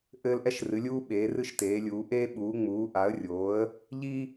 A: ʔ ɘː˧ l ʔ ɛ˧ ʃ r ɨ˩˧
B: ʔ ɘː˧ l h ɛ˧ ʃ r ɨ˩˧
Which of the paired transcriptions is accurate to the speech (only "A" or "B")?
A